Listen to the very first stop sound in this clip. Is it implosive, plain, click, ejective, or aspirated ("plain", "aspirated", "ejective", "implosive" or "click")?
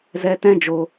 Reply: plain